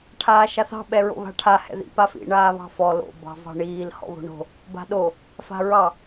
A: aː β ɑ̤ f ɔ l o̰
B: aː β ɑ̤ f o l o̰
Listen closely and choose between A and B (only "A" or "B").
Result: A